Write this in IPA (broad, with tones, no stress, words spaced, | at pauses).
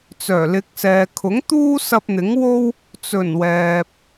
t͡sœː˨˩lɪ˨˥k̚sɛː˨ kʰʊ˨˥ŋt̪uː˥sɐ˧p̚ n̪ɪ˨˥ŋwo˥w | t͡sɵ˨˩n wɛː˨p̚